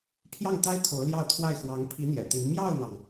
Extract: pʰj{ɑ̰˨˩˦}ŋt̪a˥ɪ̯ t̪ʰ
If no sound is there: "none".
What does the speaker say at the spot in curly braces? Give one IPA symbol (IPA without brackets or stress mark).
ɑ˥˩